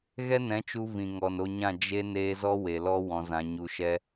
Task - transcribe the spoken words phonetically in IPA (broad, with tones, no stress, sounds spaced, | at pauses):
ɣ ɛ˦ n ɛ̃˨˦ t͡ʃ u˧ v ĩ˨ ŋ ɔ˨ n o˧ ɲ ã˦˨ d͡ʒ e˧ n eː˧ z ɔ˦ w e˨ l ɔ˦ w ɔ̃˧ z ã˧ ɲ u˧ ʃ ɛ˦